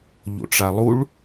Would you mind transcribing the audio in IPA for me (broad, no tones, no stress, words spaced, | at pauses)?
ʎo̰ʈ͡ʂalˠuɭ